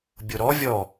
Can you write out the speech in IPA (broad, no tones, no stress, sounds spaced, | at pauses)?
bʲ o ɾ ɔ vʲ ɔ